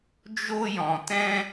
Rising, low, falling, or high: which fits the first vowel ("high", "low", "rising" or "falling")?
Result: high